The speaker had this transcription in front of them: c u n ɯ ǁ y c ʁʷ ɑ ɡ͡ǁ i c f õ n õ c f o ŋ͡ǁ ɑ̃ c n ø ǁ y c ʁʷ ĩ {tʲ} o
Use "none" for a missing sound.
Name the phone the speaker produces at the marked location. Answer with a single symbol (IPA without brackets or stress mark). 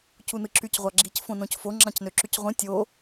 tʲ